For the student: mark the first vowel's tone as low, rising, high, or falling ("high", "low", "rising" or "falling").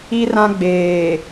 high